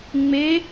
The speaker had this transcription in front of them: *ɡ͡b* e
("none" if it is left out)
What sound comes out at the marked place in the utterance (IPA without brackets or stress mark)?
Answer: ŋ͡m